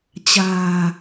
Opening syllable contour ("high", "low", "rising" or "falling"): low